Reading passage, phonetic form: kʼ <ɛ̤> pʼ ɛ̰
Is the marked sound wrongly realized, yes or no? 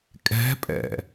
no